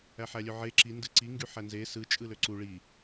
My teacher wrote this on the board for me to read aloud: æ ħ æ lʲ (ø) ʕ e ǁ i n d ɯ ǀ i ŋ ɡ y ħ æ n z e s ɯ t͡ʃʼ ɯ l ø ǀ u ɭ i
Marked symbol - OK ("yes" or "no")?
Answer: yes